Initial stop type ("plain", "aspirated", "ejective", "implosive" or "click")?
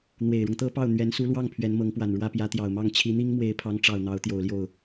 plain